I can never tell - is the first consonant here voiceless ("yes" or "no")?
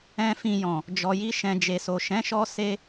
yes